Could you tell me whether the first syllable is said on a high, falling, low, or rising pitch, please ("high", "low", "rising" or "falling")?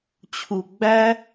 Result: low